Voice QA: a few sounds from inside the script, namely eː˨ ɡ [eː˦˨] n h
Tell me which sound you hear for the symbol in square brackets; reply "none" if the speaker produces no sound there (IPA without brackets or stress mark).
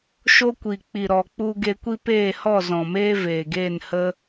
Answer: eː˦˨